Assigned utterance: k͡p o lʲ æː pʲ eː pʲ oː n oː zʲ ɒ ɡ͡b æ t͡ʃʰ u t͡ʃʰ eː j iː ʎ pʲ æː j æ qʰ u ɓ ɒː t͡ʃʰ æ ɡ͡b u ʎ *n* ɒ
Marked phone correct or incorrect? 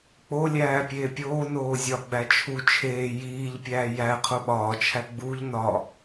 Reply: correct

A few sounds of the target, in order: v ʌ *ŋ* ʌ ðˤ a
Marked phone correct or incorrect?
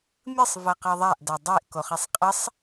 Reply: incorrect: q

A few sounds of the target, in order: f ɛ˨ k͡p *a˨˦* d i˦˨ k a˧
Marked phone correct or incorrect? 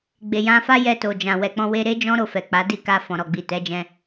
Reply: correct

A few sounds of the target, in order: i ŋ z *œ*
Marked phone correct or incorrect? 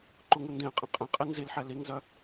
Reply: correct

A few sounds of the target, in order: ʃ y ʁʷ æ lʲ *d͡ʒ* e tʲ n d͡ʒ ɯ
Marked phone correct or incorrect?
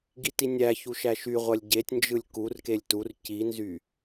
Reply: incorrect: ɟ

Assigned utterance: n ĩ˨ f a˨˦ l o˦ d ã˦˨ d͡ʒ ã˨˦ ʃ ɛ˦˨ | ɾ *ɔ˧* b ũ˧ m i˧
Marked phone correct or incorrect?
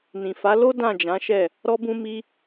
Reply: correct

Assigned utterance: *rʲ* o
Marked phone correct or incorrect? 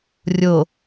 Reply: correct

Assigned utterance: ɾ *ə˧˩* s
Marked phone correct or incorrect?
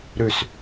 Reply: incorrect: ʉ˧˩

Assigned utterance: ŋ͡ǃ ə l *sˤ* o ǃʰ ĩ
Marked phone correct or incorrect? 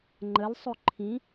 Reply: correct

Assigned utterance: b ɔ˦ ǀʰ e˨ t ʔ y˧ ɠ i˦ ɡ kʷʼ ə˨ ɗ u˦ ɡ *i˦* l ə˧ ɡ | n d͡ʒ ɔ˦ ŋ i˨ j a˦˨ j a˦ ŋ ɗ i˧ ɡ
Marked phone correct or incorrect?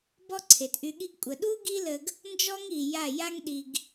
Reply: correct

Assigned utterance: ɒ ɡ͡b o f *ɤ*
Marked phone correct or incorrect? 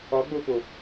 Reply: incorrect: o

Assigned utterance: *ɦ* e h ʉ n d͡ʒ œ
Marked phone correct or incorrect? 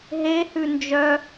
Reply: correct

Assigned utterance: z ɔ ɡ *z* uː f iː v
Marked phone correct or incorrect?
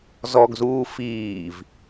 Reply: correct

